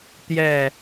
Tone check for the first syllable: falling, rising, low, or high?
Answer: falling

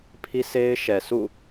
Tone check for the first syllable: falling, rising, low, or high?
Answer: high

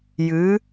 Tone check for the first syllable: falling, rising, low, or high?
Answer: rising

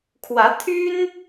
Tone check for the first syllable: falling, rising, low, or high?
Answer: rising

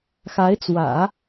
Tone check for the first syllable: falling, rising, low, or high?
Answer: rising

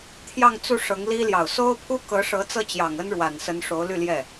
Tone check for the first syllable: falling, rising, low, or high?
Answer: falling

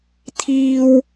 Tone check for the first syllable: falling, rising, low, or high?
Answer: high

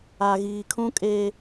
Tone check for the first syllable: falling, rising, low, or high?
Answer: low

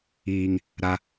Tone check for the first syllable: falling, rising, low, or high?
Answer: high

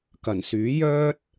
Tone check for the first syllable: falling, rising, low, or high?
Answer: low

